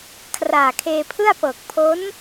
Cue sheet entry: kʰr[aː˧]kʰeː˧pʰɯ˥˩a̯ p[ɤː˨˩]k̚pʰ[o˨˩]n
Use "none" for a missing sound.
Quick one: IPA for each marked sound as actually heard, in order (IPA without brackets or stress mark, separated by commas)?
aː˨˩, ɤː˨˩, o˦˥